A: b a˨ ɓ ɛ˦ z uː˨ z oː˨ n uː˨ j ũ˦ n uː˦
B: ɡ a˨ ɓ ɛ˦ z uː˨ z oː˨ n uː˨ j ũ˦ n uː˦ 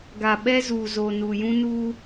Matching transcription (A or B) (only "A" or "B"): B